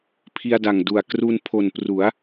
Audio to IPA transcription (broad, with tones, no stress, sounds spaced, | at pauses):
pʰ i˧ a̯ d a˨˩ ŋ d u˨˩ a̯ k r u˧ n pʰ o˨˩ n p r u˩˦ a̯